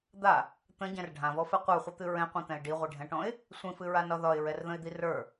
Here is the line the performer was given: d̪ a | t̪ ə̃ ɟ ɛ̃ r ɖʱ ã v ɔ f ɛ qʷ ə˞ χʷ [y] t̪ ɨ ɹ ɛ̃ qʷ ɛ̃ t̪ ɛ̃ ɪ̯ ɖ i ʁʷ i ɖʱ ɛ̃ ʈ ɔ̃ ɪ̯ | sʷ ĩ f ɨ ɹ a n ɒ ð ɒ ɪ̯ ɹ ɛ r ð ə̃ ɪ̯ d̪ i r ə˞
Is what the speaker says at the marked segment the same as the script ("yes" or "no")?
no